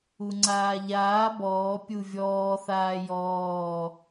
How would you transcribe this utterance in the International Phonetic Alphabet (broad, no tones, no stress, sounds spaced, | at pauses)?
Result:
u ŋ͡ǀ aː ʎ aː b ɔː pʲ u vʲ ɔː θ aː j ɔː